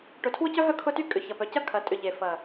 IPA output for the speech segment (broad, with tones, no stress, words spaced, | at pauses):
ʈʊ˨tʰwʊ˦cœ˦ɦœ˦ kʰʊ˦ty˦ kʼʏ˨çɐ˨ pœ˨cɐ˦ kʰɐ˨tʼʏ˨ ʎe˨fɐ˨